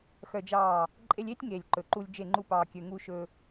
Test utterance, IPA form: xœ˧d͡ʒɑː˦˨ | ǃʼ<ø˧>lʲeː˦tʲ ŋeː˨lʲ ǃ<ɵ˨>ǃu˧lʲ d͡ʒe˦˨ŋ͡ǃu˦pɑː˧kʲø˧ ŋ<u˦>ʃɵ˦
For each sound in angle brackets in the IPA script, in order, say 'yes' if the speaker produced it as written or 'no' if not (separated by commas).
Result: no, yes, yes